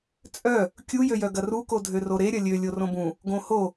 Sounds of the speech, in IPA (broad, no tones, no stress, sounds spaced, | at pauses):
t͡sʼ œ | kʲ u j ø j œ ɡ ɐ r u k o dʱ ø r o ɾ e ɾʲ ɐ lʲ ø lʲ o r õ b ũ | ɡ õ h o